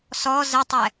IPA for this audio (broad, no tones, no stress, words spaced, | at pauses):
sɔ zətˤɛ